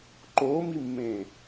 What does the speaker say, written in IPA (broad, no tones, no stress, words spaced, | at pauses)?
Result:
ǃoːmimːẽː